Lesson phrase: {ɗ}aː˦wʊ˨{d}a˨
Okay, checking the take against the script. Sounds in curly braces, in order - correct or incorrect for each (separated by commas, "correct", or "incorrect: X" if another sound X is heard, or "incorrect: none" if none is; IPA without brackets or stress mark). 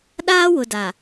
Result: correct, correct